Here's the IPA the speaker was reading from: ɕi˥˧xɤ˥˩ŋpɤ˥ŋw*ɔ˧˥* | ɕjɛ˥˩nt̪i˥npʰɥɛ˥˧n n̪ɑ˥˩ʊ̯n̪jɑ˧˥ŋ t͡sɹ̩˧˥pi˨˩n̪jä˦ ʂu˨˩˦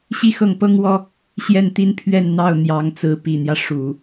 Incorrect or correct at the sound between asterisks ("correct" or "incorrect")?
incorrect